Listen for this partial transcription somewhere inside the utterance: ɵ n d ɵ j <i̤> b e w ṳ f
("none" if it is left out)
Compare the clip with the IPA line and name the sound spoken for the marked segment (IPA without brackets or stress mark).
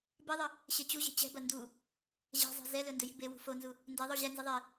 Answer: i̤